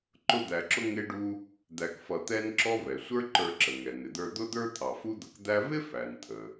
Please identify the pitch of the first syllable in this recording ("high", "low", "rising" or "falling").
high